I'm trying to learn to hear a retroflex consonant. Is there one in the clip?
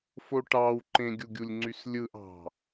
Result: yes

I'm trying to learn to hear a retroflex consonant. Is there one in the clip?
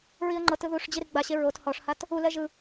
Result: yes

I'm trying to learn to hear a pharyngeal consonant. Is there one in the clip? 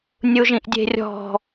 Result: no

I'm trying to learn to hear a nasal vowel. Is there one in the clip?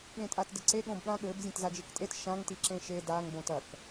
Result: yes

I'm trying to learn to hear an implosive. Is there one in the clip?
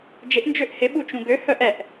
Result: yes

